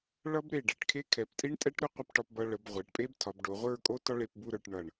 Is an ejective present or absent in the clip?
present